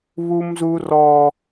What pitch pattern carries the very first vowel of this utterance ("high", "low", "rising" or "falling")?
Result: high